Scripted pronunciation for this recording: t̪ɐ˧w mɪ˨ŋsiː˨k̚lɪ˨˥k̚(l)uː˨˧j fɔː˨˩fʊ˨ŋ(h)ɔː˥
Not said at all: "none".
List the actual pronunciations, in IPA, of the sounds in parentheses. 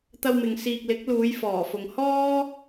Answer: l, h

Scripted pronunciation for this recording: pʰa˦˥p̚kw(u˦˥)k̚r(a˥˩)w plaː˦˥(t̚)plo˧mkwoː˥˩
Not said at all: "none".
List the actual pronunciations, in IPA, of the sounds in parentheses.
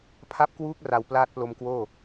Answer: uː˦˥, a˨˩, t̚

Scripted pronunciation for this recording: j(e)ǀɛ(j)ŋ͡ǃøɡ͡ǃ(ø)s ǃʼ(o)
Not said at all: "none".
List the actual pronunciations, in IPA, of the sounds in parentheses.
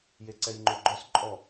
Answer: e, j, œ, ɔ

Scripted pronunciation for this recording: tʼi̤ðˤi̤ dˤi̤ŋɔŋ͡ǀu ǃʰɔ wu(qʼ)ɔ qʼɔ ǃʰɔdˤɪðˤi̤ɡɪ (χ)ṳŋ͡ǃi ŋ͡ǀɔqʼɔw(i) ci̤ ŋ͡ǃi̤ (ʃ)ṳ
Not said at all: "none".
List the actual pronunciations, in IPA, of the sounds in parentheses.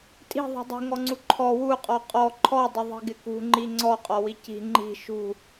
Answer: qʼ, k, i, ʃ

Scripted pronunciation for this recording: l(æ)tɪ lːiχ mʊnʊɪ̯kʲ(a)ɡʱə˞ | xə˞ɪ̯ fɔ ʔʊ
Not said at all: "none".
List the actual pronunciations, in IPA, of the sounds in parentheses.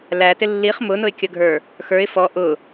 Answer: æ, ə

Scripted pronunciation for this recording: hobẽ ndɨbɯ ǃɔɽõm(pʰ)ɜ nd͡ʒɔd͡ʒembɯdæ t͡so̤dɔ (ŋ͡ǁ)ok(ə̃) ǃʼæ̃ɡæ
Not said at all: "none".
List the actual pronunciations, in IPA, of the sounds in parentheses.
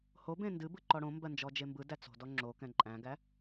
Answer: b, ŋ͡ǁ, ɛ̃

